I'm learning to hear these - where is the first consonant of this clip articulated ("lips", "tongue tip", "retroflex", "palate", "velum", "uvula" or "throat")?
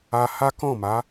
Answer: throat